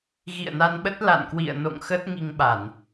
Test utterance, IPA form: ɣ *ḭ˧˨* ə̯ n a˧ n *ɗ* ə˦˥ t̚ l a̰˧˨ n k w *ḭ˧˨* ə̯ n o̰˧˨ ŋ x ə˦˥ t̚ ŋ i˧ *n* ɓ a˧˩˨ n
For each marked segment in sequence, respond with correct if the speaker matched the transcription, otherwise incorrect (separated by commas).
correct, incorrect, correct, incorrect